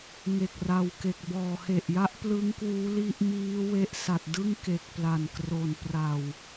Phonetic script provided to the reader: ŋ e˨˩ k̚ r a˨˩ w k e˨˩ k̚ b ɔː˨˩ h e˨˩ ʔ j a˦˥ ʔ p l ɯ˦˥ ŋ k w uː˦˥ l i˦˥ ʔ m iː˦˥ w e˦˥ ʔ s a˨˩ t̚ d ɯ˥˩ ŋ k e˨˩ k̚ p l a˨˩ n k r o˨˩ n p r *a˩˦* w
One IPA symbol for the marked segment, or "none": a˨˩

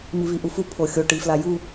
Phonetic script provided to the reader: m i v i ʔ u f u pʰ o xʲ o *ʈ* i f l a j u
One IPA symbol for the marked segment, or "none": ʈ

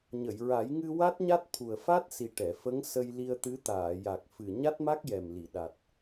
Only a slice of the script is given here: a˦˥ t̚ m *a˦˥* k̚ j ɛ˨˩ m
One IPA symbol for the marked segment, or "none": a˦˥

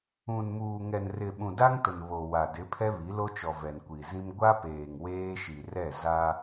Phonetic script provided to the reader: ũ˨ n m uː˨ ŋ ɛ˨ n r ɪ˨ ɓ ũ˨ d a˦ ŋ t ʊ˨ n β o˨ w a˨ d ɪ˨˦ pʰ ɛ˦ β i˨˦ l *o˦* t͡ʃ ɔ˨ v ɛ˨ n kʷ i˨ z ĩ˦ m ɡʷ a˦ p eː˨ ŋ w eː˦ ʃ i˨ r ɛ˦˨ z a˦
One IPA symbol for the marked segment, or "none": o˦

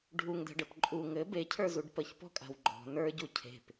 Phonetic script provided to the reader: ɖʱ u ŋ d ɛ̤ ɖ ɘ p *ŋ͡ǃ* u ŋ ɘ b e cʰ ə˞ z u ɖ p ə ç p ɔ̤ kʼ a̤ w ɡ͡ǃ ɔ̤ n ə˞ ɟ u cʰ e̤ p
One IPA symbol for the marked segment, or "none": ǃʼ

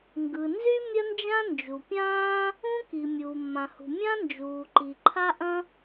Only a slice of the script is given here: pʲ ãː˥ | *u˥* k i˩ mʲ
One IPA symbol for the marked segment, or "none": ũ˥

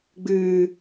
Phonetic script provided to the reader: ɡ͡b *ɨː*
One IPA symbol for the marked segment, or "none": ɨː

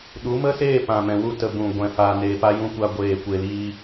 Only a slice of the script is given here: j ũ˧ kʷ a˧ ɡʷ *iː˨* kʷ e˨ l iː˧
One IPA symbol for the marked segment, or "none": eː˨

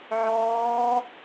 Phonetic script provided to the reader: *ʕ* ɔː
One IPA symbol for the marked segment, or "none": ʕ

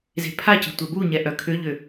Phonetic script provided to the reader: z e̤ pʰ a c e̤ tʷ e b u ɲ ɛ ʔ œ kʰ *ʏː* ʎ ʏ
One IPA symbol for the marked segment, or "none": ʏ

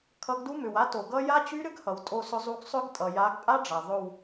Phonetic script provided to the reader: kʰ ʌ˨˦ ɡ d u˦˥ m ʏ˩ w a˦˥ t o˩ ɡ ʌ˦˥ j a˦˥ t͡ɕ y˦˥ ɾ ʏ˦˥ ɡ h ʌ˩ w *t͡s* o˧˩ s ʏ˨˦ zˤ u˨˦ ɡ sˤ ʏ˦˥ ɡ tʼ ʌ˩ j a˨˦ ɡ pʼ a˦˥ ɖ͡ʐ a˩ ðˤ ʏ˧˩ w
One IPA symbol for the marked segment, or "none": tʼ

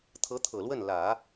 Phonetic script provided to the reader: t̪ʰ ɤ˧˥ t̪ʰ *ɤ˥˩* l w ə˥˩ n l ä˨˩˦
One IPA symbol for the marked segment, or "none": ɤ˨˩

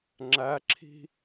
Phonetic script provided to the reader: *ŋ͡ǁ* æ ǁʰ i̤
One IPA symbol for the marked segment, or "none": ŋ͡ǁ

